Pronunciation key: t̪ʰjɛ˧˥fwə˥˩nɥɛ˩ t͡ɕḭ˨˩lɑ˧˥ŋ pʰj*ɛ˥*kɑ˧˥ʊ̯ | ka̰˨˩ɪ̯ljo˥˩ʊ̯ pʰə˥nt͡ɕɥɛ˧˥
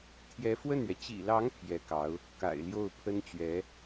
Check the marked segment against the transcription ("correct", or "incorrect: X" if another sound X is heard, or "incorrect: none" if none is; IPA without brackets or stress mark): incorrect: ɛ˧˥